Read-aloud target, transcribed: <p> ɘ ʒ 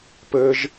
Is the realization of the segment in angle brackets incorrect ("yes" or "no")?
no